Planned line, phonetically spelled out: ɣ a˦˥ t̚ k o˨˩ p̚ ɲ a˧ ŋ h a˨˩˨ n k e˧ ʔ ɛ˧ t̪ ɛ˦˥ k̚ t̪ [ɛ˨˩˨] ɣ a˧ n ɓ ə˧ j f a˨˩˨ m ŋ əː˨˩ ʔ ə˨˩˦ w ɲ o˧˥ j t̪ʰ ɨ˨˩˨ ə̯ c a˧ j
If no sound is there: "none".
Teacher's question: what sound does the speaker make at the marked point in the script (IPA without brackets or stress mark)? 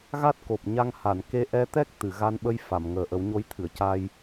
ɨ˨˩˨